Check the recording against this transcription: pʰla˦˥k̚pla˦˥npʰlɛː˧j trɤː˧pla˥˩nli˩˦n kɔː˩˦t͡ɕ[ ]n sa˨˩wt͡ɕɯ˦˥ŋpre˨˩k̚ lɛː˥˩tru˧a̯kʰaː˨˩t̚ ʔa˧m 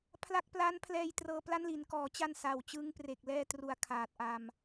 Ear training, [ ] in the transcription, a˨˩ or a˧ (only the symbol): a˧